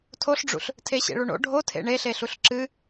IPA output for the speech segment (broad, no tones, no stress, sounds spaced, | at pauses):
tʰ o ɬ ɖ͡ʐ ṵ ɬ | tʰ e ɕ ḛ ɭ u ɳ o̰ ɖʱ o tʰ ḛ ɳ e ɬ e ɬ u ɬ ǁ ɨ